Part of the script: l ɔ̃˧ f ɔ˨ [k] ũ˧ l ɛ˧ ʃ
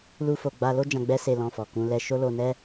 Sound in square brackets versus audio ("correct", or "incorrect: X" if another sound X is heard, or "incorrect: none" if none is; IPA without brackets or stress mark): correct